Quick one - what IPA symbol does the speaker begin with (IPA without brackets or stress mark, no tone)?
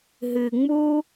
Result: ɦ